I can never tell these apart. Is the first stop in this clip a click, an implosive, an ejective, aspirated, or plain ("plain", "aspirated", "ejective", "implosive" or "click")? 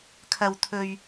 aspirated